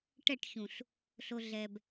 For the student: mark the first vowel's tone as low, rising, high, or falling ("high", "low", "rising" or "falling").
falling